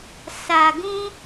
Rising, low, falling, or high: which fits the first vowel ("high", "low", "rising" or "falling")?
low